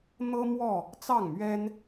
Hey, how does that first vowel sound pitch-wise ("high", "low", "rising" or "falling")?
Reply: high